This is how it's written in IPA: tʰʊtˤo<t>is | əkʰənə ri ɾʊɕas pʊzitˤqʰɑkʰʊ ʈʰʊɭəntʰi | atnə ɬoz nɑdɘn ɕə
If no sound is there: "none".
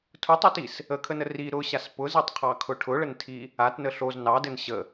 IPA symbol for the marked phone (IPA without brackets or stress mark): t